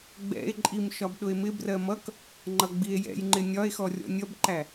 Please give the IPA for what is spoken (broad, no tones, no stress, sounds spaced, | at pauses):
ɡ͡b ɛ̰ e̯ ǃʼ i m ʃ ɒ b ɗ ʊ e̯ m ɪ b r ɜ m ʌ k | ŋ͡ǃ ʌ ɡ͡b i e̯ j ɛ̰ j ŋ͡ǃ ɪ nʲ ɒ e̯ x ɔ rʲ ɔ̰ nʲ ʌ b ǃ æ